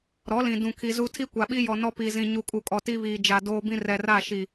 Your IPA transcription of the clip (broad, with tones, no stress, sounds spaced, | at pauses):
ɾ ɔ˨˦ l ĩ˨ d ũ˨ kʰ i˨ z u˦ tʰ i˦ kʷ a˨ ɓ i˦ j ɔ˨ n ɔ˦ p iː˨ z ĩ˨ ɲ u˨ kʼ u˨ kʼ ɔ˨ t i˦ β iː˨ d͡ʒ a˨ d oː˦ b ĩ˦ r ɛ˨ r a˦˨ ʃ i˨